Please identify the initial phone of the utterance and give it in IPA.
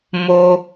m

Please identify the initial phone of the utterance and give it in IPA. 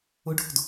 ʊ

